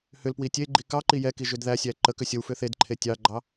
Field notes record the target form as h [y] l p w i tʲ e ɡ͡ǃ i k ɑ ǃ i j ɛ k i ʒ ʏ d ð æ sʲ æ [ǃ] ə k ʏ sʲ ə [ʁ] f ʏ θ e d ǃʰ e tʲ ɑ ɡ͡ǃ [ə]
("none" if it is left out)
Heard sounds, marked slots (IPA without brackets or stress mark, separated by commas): ʏ, ǃ, w, ɑ